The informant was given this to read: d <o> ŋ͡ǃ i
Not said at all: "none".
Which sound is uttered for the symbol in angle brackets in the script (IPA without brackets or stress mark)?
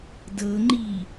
ɤ